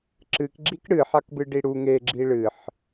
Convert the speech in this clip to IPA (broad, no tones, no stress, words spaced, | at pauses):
ǁɨkɡ͡ǁik ɽɨħakbɨ ɖiɽu ŋeɡ͡ǁi ɭɨħ